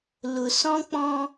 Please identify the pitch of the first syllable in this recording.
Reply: low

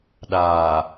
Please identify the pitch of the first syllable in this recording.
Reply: low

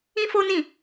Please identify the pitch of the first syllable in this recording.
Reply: high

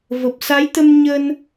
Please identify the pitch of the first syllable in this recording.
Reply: low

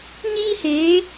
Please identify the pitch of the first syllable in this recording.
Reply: high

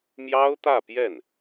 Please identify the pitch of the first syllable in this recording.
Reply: high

